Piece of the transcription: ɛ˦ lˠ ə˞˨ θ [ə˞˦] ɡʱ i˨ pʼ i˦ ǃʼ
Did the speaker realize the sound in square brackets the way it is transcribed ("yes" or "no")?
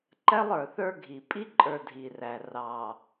yes